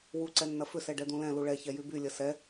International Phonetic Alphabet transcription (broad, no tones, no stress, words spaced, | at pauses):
wu ǀɛnːɐfʏ sɛɖɛd̪ũlɛ̃ luɭɛ çɛjyby lʲɐsɛ